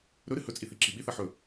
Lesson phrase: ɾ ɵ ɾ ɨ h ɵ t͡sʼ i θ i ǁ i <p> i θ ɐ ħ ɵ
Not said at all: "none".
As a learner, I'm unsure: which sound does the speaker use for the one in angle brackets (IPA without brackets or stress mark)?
ɓ